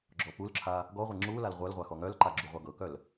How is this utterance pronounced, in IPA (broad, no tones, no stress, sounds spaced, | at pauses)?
ɡ͡ǁ ɔ p u l ǁʰ a | ɡ ɔ ʁʷ e ŋ͡ǁ u l a l ʁʷ œ l ʁʷ a x ɔ ŋ œ l ǃ a ɡ͡ǁ u ʁʷ a ɡ ɤ k œ l